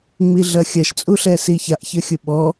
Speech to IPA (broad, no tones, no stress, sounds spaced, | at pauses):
ŋ͡m i ɮ ɐ xʲ ɐ ʃ t͡sʼ u ɬ ɛ s i ç a ʔ ç ə xʲ ʊ ɓ ɔ